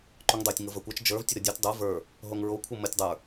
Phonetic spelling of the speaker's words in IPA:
ǃ u ŋ dˤ o tʲ ŋ ɤ v ə˞ kʷ ɛ t͡ʃ d͡ʒ ə˞ v tʲ ə ɾ ɤ dʲ ɤ tʲ dˤ ə˞ v ə˞ | ɦ o ŋ ɹ o kʷʰ ɤ m ə tʲ dˤ ə˞

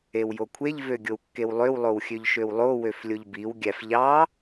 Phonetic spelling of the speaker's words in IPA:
e w j o kʷʰ e ʎ v ø ɡʲ o w kː e w lˠ ø w lˠ o w xʲ ø ʎ ʃ ø w lˠ o w ø f lʲ o ʎ b i w ɡʲ æ f ʎ ɑ

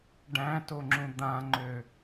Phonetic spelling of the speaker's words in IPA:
ɖ æ̃ t o ŋ͡ǁ ũ d̪ ã ŋ͡ǃ ø

